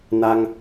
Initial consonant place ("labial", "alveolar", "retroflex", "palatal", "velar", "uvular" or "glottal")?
alveolar